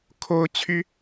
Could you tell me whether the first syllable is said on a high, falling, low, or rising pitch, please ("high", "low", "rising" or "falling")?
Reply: high